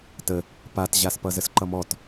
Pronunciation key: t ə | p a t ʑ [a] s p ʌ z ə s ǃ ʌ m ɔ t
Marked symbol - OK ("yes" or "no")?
yes